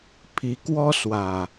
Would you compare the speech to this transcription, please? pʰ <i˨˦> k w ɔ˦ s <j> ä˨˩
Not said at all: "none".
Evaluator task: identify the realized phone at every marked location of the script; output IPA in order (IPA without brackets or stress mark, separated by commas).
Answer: i˨˦, w